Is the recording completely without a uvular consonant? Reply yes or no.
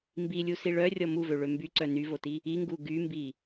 yes